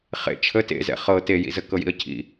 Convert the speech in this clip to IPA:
χ ḛ t͡ʃʰ ə t ḛ z ɛ̰ χ ɤ t e j ḭ z ə k ɤ j ḭ ə̯ cʰ ḭ

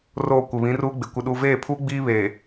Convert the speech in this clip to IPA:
r oː˨ kʷ ɪ˨ β ĩ˨˦ r uː˦ ɡ͡b ɪ˨ kʷ ɪ˨ ɗ u˨ v eː˦˨ pʰ uː˦ ɡ͡b iː˦ β eː˨

